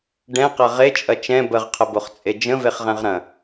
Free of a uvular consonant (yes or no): no